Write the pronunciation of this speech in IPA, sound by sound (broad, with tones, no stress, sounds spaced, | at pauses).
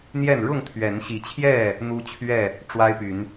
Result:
n̪ j ɛ˥˨ n ɻ ʊ˥˨ ŋ t̪ʰ ɥ ɛ˨˦ n ɕ i˨˦ t͡ɕʰ j ɛ˥˨ | n̪ u˦ t͡ɕʰ ɥ ɛ˥˨ | ʈ͡ʂ w a˦ ɪ̯ p y˨˦ n